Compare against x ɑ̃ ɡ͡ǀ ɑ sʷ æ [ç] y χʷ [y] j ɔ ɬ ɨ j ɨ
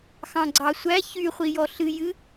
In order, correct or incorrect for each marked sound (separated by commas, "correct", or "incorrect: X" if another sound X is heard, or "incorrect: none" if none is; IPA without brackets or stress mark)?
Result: correct, incorrect: i